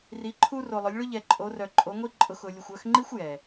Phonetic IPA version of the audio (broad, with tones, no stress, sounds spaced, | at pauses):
r i˧˥ ǃʰ u˥ r o˧ lˠ ʊ˧˥ lʲ ɭ ʊ˥ ʎ ɛ˧ ǃʼ o˧˥ r œ˧ ǃʼ o˧˥ ŋʷ i˥ ǃʼ ʊ˧ x ʊ˩˧ lʲ ʊ˧ xʷ œ˧˥ x ŋ͡ǃ i˥ xʷ j ɛ˩